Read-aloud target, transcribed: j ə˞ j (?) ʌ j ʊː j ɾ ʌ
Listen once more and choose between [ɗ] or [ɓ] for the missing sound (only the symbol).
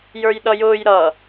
ɗ